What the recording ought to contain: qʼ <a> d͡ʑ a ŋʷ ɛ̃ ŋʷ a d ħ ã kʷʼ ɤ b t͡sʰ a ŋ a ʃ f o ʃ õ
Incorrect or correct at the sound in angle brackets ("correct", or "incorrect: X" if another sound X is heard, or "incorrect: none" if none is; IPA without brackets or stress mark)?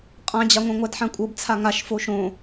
incorrect: ã